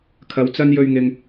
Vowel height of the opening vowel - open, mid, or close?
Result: open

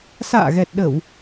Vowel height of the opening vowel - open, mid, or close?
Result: open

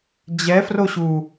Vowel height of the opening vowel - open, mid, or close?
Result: mid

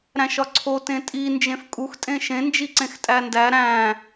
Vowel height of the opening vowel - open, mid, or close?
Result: open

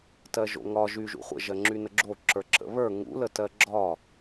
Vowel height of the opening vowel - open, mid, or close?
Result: mid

